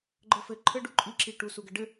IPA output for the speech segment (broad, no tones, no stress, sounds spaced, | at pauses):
ɡ͡ǃ ə f ɘ ǃʰ ɘ ɖ u ǃʼ i ǁ i ʈ u s u ɡ ə ɖ ɘ